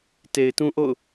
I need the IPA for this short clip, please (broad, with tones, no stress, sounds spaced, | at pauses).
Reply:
t e˨ ɪ̯ t ũ˦ ʔ o̰˦˨ ʊ̯